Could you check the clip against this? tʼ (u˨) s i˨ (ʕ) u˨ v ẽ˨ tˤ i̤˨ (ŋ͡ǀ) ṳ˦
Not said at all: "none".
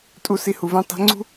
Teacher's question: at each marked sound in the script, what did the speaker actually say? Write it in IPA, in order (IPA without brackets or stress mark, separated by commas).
u˨, h, ŋ͡ǀ